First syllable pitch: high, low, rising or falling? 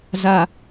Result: low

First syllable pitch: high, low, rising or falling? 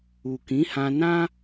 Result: low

